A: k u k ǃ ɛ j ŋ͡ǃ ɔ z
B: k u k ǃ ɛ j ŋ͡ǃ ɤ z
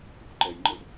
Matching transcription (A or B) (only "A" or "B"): B